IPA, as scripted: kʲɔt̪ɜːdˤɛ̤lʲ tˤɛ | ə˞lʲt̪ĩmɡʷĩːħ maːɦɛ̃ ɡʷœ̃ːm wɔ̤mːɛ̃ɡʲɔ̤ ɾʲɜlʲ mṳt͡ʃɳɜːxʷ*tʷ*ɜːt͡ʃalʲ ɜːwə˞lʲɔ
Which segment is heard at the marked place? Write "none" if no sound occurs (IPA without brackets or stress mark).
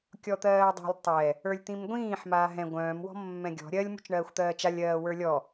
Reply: t̪